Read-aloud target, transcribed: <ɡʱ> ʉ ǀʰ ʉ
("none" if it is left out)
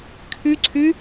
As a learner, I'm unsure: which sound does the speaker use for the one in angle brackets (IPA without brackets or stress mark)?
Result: kʰ